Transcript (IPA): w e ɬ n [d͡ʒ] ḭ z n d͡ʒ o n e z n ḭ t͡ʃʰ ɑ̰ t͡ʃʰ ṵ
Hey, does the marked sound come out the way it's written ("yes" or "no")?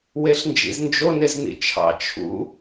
yes